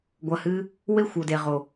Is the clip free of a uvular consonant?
no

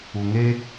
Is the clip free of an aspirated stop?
yes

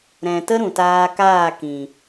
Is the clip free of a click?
yes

